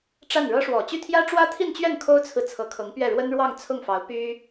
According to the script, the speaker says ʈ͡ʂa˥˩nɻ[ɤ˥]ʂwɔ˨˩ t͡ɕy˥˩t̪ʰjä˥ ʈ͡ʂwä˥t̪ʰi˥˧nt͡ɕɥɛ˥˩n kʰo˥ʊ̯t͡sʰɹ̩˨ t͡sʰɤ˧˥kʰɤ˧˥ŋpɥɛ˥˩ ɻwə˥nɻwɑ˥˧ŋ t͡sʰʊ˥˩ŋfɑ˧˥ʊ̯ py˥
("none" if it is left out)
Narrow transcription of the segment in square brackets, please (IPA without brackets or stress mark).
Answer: ɤ˥